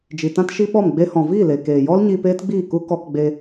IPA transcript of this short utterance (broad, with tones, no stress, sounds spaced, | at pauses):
d͡ʒ i˨ t ã˦ t ʃ i˦ ɓ ɔ˦˨ m ɡ͡b e˧ h ɔ̃˨ v iː˦˨ l e˨ k eː˨ j ɔ˦ l ɲ iː˧ p eː˦ t ɡ͡b iː˦˨ k u˦ k ɔ˧ k ɡ͡b e˧